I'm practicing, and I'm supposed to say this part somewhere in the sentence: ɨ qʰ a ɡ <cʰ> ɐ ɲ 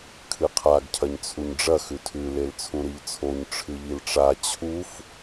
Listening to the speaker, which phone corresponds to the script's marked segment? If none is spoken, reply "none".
cʰ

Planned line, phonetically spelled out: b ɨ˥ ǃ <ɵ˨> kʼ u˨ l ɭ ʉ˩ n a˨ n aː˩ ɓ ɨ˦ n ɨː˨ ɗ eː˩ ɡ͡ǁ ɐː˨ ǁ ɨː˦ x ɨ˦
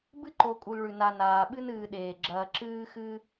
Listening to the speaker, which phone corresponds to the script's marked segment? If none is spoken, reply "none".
o˨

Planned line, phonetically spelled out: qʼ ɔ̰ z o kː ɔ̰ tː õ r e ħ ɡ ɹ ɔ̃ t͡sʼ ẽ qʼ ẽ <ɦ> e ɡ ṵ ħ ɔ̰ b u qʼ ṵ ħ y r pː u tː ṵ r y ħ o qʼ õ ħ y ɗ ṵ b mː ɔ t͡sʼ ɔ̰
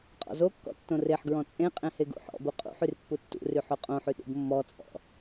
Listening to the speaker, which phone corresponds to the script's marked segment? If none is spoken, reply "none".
h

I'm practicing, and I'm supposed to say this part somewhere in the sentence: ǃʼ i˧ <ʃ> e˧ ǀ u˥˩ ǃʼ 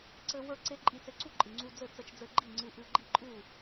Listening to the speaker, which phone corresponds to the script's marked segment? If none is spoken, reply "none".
t͡s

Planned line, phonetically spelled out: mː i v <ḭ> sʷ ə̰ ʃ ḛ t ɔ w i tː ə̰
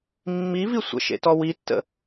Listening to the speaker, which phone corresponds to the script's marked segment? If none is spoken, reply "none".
i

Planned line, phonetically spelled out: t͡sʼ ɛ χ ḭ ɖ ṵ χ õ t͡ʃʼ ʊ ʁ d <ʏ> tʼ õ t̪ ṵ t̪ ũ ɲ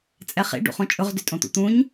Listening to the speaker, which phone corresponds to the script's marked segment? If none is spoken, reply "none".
ʏ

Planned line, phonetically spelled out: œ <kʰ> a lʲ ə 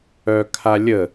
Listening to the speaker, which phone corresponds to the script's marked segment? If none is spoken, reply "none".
kʰ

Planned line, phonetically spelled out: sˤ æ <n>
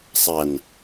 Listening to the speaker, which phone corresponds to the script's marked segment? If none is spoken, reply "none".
n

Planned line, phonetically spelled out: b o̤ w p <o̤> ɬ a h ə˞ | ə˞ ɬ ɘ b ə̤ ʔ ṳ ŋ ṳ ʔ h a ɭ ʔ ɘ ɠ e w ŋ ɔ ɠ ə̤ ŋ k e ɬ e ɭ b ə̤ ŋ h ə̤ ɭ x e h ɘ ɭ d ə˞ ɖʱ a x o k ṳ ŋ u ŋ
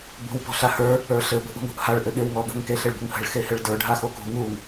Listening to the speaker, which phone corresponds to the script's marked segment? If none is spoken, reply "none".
ɔ̤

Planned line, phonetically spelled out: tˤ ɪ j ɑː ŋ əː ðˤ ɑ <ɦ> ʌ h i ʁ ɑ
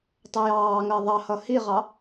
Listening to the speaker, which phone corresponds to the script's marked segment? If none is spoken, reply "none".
h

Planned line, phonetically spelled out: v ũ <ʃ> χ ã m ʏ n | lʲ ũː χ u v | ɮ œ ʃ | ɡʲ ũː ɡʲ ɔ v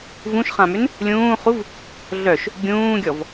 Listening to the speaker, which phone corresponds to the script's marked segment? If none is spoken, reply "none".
ʃ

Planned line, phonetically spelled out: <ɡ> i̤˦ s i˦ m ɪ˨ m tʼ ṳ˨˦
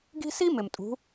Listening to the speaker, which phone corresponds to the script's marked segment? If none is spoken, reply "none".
ɡ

